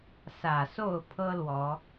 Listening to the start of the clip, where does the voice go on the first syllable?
low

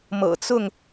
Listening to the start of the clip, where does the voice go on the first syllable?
low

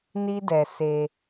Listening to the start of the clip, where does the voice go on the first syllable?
high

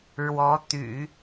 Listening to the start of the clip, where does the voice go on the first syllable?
rising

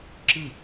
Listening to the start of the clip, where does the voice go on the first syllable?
falling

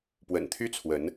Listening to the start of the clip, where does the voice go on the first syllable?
low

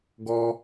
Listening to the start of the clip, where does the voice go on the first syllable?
high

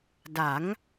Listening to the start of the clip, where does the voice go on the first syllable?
rising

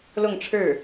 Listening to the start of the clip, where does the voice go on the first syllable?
falling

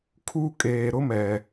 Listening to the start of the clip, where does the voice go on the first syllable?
high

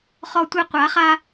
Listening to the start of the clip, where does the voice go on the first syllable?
high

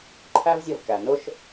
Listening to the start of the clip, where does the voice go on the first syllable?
high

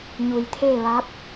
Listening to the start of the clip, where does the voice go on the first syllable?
low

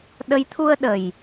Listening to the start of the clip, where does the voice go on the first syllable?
rising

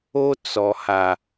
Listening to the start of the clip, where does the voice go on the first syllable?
high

